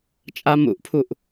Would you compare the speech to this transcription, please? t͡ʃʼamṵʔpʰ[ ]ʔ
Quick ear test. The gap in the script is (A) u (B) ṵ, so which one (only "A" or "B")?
A